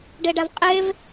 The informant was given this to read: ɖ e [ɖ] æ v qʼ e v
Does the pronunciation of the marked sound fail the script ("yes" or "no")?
no